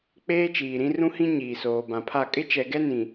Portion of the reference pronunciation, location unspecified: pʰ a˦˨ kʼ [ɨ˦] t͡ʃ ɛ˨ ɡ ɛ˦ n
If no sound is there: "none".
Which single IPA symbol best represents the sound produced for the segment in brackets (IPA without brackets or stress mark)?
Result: ɪ˦